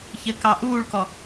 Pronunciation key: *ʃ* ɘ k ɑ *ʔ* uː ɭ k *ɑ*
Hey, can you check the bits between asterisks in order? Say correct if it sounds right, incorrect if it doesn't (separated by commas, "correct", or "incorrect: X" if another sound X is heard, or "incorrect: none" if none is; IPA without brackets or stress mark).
incorrect: ç, correct, incorrect: ɔ